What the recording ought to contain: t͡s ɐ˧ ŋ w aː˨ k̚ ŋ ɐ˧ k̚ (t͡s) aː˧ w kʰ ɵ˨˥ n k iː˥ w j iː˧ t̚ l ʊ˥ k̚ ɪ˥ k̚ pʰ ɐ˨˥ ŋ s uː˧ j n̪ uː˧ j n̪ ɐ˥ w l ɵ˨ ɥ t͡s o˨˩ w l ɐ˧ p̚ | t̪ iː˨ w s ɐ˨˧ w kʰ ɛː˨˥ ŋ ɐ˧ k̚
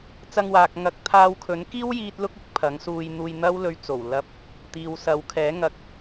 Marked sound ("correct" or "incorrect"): incorrect